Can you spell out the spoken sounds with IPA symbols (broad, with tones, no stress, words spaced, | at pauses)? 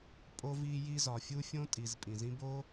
pʼo˦vi˦ji˦ zɒ˨fʲu˦fʲõ˦tʼi˨z pʼĩ˨zĩ˦bo˦